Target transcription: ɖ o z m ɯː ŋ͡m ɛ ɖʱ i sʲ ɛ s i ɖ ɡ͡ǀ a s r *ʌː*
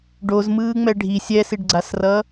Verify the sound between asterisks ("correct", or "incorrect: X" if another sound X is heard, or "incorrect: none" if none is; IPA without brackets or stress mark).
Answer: correct